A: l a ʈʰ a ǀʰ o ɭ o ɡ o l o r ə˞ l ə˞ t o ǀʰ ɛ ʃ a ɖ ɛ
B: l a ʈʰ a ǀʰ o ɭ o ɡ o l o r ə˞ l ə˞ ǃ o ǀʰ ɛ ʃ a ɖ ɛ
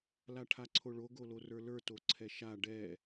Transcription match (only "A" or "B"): A